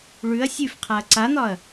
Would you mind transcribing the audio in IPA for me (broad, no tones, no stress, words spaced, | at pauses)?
ɭʉɐ̯ sʲʉfqʰaɐ̯ ǀan̪ɒɐ̯